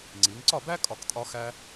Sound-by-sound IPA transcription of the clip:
ŋ͡ǀi˩˧ŋǀɒ˥˨bæ˥ kʼɒ˥˨ktʼɒ˥ xæ˥

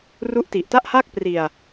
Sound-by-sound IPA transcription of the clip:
ru˦˥ʔti˨˩ʔta˥˩ʔ haː˥˩k̚pri˧a̯

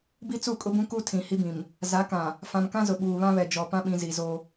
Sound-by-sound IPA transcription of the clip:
bi˦t͡su˦˨kʼʊ˦bũ˦ ku˦ tʰĩ˨hi˦bĩ˨m | za˨˦kã˨ | fã˨mkã˦zʊ˨ ɓuː˨βã˦βɛ˨ d͡ʒɔ˨pã˦ɓĩ˨zi˨ zo˦

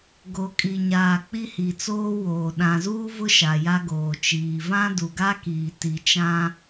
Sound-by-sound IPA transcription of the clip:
ɡo˨kʼi˨ɲaː˨ k͡pi˦hi˨t͡soː˦woː˨ ɗã˨zuː˦vʊ˦ ʃa˨ja˦ ɡoː˨t͡ʃiː˨ vã˦du˨ɡa˦ kiː˨ti˨t͡ʃã˦

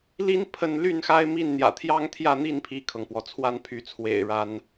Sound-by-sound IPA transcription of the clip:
li˦n pʰə˦n ly˥˨nxa˦ɪ̯mi˥˨n n̪jä̰˨˩t̪ʰjɑ˦ŋt̪ʰjä˥˨n̪i˥˨n pʰi˥˨kʰɤ˩ŋpwɔ˩ t͡sʰwa˥˨npʰy˨˦t͡sʰwḛ˨˩ɪ̯ ɻa˨˦n

